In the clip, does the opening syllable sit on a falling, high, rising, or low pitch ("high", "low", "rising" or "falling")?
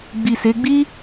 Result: low